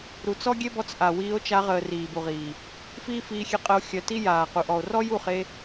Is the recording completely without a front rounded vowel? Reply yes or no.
no